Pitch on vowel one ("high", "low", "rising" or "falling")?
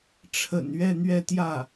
low